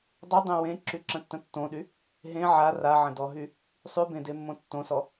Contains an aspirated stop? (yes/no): no